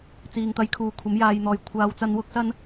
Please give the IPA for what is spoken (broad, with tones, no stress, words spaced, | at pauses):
t͡siː˨ŋt̪ɐ˧jkʰuː˨kʷʰɐ˨˥m jaː˧jn̪ɔː˨˧j kʷʰaː˨˧wt͡sɐ˧n wʊ˥k̚sɐ˥n